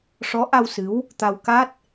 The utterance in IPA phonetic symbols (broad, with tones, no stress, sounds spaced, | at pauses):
ʂ ɔ˧˥ ʔ a˧ w s ɨ˧˥ w | t̪ a˧ w k a˦˥ t̚